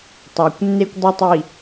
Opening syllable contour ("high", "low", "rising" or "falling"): low